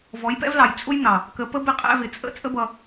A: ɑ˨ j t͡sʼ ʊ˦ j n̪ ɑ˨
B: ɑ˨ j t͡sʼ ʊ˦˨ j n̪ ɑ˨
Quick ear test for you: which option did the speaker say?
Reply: A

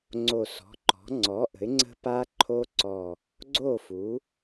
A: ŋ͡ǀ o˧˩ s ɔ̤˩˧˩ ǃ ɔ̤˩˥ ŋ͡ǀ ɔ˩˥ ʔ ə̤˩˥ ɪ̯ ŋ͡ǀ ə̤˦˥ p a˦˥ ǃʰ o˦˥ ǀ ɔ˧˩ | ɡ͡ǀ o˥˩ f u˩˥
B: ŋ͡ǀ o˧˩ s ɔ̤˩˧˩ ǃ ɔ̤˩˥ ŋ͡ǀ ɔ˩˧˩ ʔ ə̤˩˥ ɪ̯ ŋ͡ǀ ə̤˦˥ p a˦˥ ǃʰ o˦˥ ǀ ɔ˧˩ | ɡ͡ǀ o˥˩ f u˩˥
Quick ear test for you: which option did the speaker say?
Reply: A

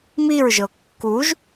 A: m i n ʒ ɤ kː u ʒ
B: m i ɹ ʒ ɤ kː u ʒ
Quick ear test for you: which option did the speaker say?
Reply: B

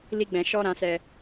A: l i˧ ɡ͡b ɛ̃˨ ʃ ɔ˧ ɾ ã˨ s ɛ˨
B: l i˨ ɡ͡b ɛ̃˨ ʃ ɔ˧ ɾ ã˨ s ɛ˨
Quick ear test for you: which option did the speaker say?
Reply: A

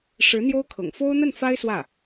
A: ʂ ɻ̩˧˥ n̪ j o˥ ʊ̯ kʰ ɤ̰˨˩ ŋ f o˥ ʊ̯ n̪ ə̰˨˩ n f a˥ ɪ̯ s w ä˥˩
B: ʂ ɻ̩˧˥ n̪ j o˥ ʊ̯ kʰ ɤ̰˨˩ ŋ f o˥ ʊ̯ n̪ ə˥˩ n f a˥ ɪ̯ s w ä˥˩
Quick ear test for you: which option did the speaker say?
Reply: B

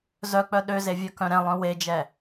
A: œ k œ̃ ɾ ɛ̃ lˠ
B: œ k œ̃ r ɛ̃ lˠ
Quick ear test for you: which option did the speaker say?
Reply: A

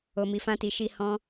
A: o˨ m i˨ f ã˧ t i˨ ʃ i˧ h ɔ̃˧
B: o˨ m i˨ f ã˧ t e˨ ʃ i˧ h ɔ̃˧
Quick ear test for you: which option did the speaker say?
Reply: A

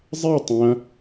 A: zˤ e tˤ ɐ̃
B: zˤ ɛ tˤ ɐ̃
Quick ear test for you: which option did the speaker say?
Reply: A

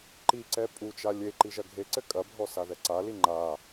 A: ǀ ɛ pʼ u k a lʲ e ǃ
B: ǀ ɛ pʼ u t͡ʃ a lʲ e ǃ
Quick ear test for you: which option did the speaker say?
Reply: B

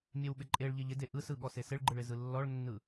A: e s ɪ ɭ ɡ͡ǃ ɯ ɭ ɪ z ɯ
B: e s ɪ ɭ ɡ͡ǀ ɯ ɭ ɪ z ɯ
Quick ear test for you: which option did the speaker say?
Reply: A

